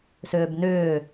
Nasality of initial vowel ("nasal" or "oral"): oral